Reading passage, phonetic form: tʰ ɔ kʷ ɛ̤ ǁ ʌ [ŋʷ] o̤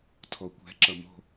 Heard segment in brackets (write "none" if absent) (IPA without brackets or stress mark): m